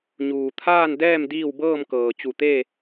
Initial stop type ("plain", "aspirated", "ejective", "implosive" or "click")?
aspirated